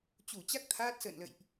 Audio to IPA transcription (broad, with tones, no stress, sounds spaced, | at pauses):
t͡ɕ u˧˩ t͡ɕ a˦˥ k̚ t̪ʰ aː˦˥ t̚ s ə̰ː˧˨ n l ə̰˧˨ j ʔ